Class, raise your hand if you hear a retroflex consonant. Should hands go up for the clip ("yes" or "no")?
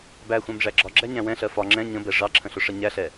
yes